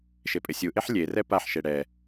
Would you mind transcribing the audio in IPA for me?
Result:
ʃepʼɪsʲuʔeħ lʲerɛ paħʃe ɽɛ

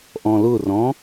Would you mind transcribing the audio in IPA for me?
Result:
ʔɔ̃lʊrɔ̃

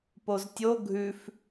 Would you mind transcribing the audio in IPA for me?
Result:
poztʲo ɡʱʉf

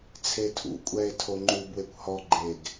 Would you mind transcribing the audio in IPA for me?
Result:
t͡sʰetʰṵkʷʼɛe̯ tʰoŋ͡ǃubwekʷ hɔɡ͡ǃeɡ

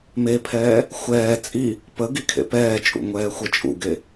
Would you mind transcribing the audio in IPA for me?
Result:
mepʰɛː | xʷɛː t͡sʼi | pəɡikʰḛ pɛːt͡ʃʼṵ ŋʷɛːxʷɛt͡ʃʼṵɡe

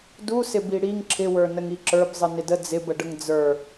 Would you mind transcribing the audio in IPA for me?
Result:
dusɪbi ɽiŋ ǁʰɪwə˞ nəŋiǁə˞bzˤɨ nɪdə d͡zɪbəɖəŋ d͡zə˞

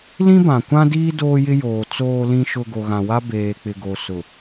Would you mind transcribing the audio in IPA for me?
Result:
lĩ˦bã˨kʷã˦diː˦ doː˦jɪ˦ joː˨ t͡soː˨lĩ˨ʃʊ˨ ɡo˨ɣã˨wa˦ beː˨k͡pɪ˨ ɡo˨ sʊ˨

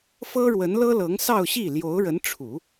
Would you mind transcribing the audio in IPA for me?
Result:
fɤ˥ɻwə˧˥nlɤ˥lɤ˧˥ŋ sɑ˥˧ʊ̯ɕi˥˩ ljo˧˥ʊ̯ɻə˧˥nʈ͡ʂʰu˨˩˦

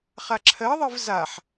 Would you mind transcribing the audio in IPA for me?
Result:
χaǁʰɜðˤɨv zaħ

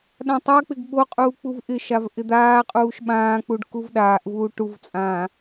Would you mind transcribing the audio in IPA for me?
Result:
ɗãtˤak͡pɪɡ ɓoqʼuː k͡puvʔɪʃav ʔɪd̪aːqʼuːʃ ɓãːk͡puɖ kuvɗaːʔvuː ʈuvt͡sʼãː

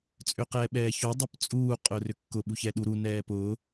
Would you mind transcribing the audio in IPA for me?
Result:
t͡sʼʏqɛːɓɛːço dˤʏpt͡sʼuː qʼʊːrʏkːʊ ɓuçɛːɗu ɾu nɛːpʊː

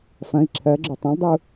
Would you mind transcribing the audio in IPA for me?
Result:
fɐ̃i̯ ǁʰɜɡ͡ǁo tˤɐ̃ldˤiu̯

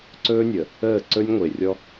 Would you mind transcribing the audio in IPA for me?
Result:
ǀɵː˦nʲə˨ | əː˦˨ǀɵ˦nʲŋʷe˨ rʲɔ˦

